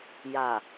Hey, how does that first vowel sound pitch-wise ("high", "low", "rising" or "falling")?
low